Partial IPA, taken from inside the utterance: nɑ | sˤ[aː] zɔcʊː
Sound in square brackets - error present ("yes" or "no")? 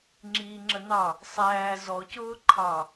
yes